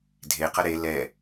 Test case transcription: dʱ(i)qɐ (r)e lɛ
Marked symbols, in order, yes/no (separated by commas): no, no